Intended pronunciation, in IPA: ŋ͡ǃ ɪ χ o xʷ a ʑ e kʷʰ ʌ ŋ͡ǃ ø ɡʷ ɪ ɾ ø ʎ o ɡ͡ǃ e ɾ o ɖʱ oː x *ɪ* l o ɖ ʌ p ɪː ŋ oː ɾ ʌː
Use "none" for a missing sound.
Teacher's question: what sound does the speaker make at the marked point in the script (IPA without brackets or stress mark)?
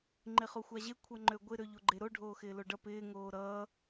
ɪː